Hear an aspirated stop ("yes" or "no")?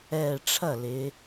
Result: yes